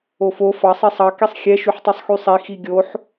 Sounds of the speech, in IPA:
ofo fɑ sˤisˤɑ kisˤxʲɛ ʃyħtˤysˤxysˤi xiɡʲoħ

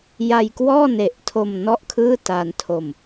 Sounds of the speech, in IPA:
ja˧jkwɔː˥˩ne˨˩ʔtʰo˧m nɔ˥˩ʔkʰɯː˥˩taː˧ntʰo˧m

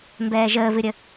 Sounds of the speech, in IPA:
mbɛːʒəːvɨɾʲə

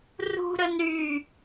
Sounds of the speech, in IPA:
rṳɾən ɾy

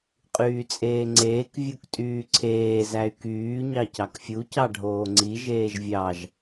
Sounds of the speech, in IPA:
qʼyːt͡sʼeːŋ͡ǀeːk vʲuktʼyːǀʰeː zæy̯kyː ɲɑcɑkfʲu cɑɖʱoːŋ͡ǀi ʒeːʒvʲɑʒ

